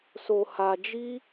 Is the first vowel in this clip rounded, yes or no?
yes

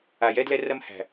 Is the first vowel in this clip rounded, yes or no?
no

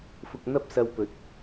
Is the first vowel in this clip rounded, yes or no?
yes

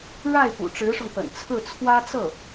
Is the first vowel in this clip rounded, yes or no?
no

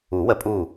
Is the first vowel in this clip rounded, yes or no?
yes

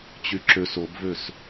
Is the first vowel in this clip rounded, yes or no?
yes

